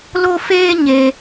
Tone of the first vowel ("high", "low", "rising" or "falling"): high